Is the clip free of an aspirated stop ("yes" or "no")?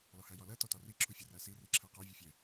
no